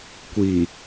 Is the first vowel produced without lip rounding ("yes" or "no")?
yes